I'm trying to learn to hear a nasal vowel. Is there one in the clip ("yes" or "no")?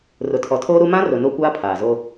yes